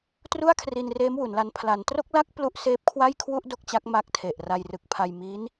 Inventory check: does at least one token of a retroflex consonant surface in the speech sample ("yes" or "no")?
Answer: no